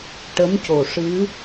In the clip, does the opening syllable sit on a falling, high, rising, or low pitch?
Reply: rising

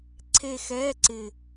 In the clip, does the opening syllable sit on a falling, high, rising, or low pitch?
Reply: falling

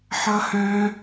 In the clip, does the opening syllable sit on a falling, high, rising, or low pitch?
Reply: high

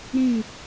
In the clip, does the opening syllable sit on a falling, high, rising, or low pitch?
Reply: falling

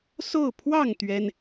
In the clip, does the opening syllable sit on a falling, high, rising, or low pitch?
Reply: falling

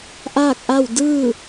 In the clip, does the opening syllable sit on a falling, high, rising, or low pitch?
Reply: falling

